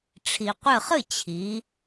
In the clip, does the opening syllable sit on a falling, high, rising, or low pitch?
low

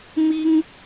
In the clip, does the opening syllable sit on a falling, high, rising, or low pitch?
high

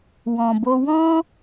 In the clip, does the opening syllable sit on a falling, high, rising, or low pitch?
low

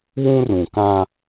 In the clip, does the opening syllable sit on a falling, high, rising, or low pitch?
high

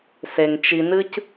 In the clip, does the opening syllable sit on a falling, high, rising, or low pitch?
low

